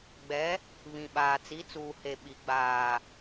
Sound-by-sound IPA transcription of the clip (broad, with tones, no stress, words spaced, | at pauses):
ɡ͡bɛ˨˦ | βĩ˨ɓaː˨ t͡si˨˦t͡suː˨he˨ ɓi˨ ɡ͡baː˨